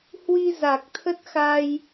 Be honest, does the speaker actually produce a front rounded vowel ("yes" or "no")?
no